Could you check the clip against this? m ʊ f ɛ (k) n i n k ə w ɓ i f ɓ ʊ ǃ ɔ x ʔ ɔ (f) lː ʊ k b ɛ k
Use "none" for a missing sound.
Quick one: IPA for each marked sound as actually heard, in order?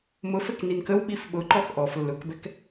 k, f

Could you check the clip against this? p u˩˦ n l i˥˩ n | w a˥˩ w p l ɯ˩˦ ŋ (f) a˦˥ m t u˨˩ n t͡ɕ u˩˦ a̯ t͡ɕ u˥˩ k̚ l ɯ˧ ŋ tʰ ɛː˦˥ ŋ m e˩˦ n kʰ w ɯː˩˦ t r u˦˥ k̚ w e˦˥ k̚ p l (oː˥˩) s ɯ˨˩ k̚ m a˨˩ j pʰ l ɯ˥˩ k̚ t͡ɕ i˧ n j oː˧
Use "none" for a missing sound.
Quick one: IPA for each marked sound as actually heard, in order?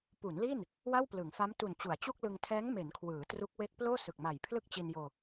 f, oː˥˩

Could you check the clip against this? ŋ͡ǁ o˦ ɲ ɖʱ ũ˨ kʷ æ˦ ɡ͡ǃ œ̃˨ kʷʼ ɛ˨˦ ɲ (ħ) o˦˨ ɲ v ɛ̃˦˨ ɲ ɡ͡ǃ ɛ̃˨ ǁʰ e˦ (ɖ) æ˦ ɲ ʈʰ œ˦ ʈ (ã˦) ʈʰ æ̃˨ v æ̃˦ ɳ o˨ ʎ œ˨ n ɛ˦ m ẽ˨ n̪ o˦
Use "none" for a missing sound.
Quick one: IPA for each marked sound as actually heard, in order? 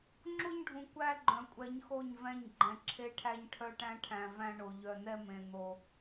x, ʈʰ, æ̃˦

